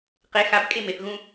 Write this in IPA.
q e x a b kʼ e m e θ ɣ ũ

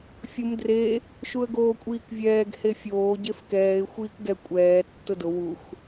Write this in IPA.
fʲ ʊ m d r e | ʃ u ə̯ ɡ oː kʷʼ iː k vʲ ɛː ɡ h e fʲ oː ɟ e f k ɛː ɪ̯ xʷ iː k ɡ ɛ kʷʼ ɛː tː ʊ d ʊ w u x

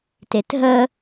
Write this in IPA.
t e t ɦ ə

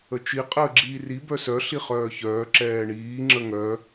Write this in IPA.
ə t͡ʃ i qʼ əː ɡ͡ǁ iː r i b œ s œ ɬ i χ œː ç œː ǁ ɛː ɳ iː ŋ͡ǁ ə ŋ œ

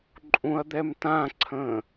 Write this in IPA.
ǃʼ ũ ɐ̯ d̪ ɛ m t ã ǀʰ ə̃ː

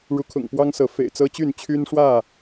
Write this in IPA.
ɻ u˨˦ kʰ ʊ̰˨˩ ŋ p w ɑ˦ ŋ s ɤ˨˦ f ḛ˨˩ ɪ̯ t͡s ɤ˦ t͡ɕ y˥˨ n t͡ɕʰ y˦ n ʂ w ä˥˨

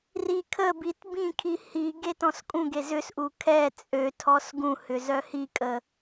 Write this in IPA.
r i kʰ ə b i t b ĩ kʰ i h i ɡ e t ɔ̃ s kʼ ũ ɡ e z ʏ s ʔ u kʰ ɛ t͡sʼ ø tʰ ɔ s ɡ ũ h ʏ z œ h i kʼ ə

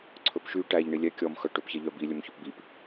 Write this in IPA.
ǀʰ ɵ p ʃ y ʈ æ ʎ ɳ i lʲ ɛ kʲ ɔ m x œ ʈ ɵ p ç ɛ ʎ œ b i lʲ ɵ m ç ɵ p b i p

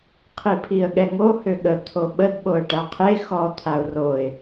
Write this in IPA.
qʰ i pʰ i ə̯ ɠ ɛ ŋ o h ø ɠ ə t̪ʰ o ɓ ə d ɓ o ə̯ ʈ a qʰ e x ɔ t̪ʰ a ʊ̯ r o ɪ̯

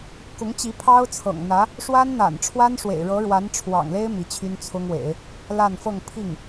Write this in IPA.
k ʊ˧˥ ŋ t͡ɕ i˧˥ pʰ ɑ˥ ʊ̯ t͡sʰ ɤ̰˨˩ ŋ n̪ ä˧˥ | ʂ w a˥ n n̪ a̰˨˩ n ʈ͡ʂʰ w a˥ n ʂ w ḛ˨˩ ɪ̯ ɻ ɤ˧˥ ɻ w a˧˥ n ʈ͡ʂʰ w ɑ̰˨˩ ŋ l e˥ ɪ̯ m i˧˥ t͡ɕʰ y˥ n t͡sʰ ʊ˥ ŋ w ḛ˨˩˦ ɪ̯ | l a˥˧ n f ɤ˥˧ ŋ pʰ i˥˩ ŋ

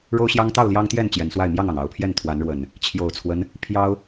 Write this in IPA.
ɻ o˦ ʊ̯ ɕ j ɑ˦ ŋ t̪ ɑ˥˨ ʊ̯ l j ɑ˦ ŋ t̪ j ɛ˥˨ n t͡ɕ j ɛ˨˦ n s w a˥˨ ɪ̯ m j ɑ˥˨ ŋ ɑ˩ ŋ ɑ˨˩ ʊ̯ pʰ j ɛ˥˨ n t̪ʰ w a˨˦ n ɻ w ə˨˩ n | t͡ɕʰ j o˨˩ ʊ̯ t͡sʰ w ə˦ n | pʰ j ɑ˦ ʊ̯

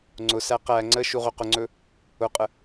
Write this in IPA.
ŋ͡ǀ ʊ s æ q æ ŋ͡ǀ ə ʃ u ʁ ɵ q ʊ ŋ͡ǀ ɵ | ʊ qʼ ə

